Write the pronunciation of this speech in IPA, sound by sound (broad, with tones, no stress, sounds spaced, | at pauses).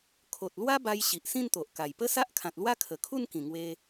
kʰ o˨ t̚ l w a˦ b a˧ j ɕ i˨ ʔ s ĩ˥˧ n t̪ o˨ ʔ k a˨˩ j p ə˦ s a˦ ʔ kʰ ã˨ t̚ l w a˦ kʰ ə˨˩ kʰ u˥˧ n k ĩ˨˩ ŋ w e˧